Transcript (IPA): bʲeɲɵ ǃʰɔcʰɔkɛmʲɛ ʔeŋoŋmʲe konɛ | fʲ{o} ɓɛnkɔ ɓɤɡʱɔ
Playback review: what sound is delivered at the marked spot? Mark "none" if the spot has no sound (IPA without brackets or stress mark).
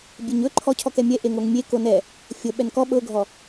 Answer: ɤ